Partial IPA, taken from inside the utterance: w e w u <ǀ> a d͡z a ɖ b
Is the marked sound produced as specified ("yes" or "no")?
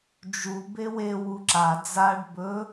no